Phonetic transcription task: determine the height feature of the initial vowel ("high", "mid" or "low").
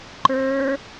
mid